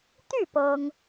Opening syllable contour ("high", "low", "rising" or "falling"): falling